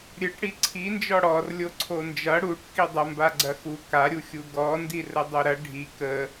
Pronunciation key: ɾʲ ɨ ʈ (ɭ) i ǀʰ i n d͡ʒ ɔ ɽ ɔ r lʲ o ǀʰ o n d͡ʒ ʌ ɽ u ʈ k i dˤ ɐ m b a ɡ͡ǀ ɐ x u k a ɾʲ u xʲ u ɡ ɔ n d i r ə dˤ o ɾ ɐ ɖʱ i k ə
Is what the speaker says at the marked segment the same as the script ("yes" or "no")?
no